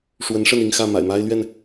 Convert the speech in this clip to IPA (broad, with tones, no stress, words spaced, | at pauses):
ʂwə˨˦nʂə˥˨ni˥˨ŋxä˥˨ ma̰˨˩ɪ̯ma˦ɪ̯lɥɛ˥˨n